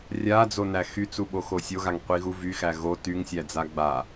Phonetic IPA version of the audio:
rʲ a d͡z o n æ x y t͡s u ɓ o x o sʲ o ɣ a ŋ qʷ i ɣ u v y x æ ɣ o t y ŋ sʲ æ d͡z a ɡ͡b a

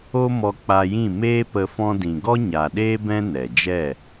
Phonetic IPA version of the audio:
o˦ m ɔ˧ k͡p a˧ j ĩ˦˨ m eː˦ p ə˧ f ɔ̃˧ d ĩ˨ ɡ ɔ˦ ɲ a˨ ɗ eː˦ b ɛ̃˦ n ɛ˨ d͡ʒ ɛ˦˨

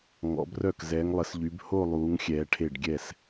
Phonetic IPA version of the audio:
ŋ ɔ̰˨˦ b r œ˥˩ k z ɛː˨˦ ŋ lˠ ə˨˦ s ʎ y˨˦ b h o˥˧ lˠ uː˨˦ ŋ xʲ ɛː˨˦ ʈʰ e˥˩ ɖ ɡʲ ɛ˥˩ s

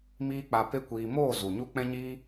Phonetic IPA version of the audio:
m iː˦ k͡p a˧ p e˦ kʷ iː˧ m oː˦˨ z u˨ ɲ u˦ k͡p ɛ̃˦ ɲ iː˦

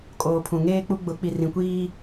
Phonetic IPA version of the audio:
kʼ oː˨ pʰ ũ˨ ŋ eː˦ k͡p u˦ ɡ͡b ʊ˨˦ k͡p i˨ r ĩ˨ kʷ iː˦

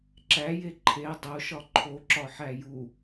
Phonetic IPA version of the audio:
ǁ æ j e ǃʰ e dˤ o ʃ ɒ ǃʰ o ǁ ɒ ħ æ j u

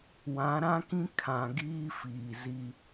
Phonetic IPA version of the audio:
w ã˨˦ ɾ ã˦ k ĩ˦ kʰ ã˨ ɡ iː˦ f iː˨ z i˦

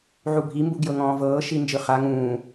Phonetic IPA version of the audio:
ʕ u bʱ i m b u ɡ j ɤ ŋ ɔ̃ː v ɤː ʃ i n d͡ʒ ɯ χ a ŋ ũː

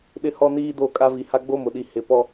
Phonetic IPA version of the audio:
ɗ ɪ˦ h ɔ˦ n iː˦ d o˦˨ kʼ a˦ v i˨ h a˦ ɡ͡b o˦ m ʊ˨ ɗ i˨ h ɪ˨ p ɔ˦

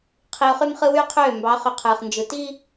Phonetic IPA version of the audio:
qʰ i˨ ʊ̯ χ y˦ m χ ɯ˦ w yː˦ qʰ øː˦˨ m b ɑ˨˦ χ ø˨ qʰ ɯː˨ χ n d͡ʒ ɯ˨ t i˦

